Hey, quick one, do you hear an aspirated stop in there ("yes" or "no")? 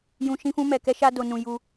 no